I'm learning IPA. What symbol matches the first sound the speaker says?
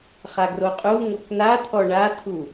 χ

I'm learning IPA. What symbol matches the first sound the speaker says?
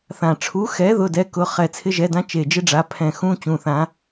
θ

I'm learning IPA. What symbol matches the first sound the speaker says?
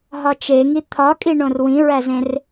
ɦ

